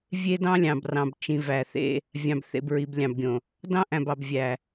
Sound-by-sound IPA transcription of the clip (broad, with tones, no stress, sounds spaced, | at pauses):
vʲ e˦ d ɑ̃˦ lʲ ɑ̃˨ b r ɑ̃˨ b t͡ʃ ĩ˨ v æ˨ θ ḛ˦ | vʲ ɑ̃˨ b θ ḛ˨ b ɹ i˨ b lʲ ɑ̃˨ b ɡʲ õ˨ | d ɑ̃˦ ʔ æ̃˨ b ɑ˨ b vʲ æ˨